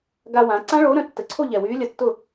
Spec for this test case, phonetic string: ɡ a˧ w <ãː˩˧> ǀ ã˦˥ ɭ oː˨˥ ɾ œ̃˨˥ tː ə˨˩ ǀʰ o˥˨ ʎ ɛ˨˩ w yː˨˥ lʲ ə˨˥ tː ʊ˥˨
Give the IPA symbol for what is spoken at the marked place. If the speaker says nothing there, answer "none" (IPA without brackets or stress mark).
ãː˩˧